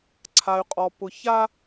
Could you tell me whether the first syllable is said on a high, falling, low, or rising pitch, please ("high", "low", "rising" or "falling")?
low